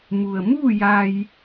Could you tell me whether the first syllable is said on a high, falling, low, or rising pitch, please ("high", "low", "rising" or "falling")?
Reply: low